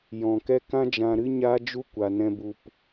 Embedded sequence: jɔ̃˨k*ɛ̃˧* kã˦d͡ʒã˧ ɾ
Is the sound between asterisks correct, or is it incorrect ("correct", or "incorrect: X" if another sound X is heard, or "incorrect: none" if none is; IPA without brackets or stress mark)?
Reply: incorrect: ɛ˧